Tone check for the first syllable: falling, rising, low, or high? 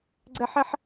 high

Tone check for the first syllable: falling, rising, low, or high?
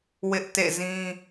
high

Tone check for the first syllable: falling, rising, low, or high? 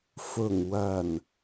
low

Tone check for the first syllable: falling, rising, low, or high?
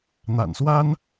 low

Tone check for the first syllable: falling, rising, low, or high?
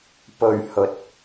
low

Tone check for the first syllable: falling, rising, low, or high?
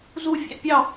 falling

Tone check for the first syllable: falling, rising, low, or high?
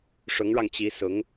rising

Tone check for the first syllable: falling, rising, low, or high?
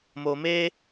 low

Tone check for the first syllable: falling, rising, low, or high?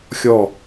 falling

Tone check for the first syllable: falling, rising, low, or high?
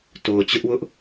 low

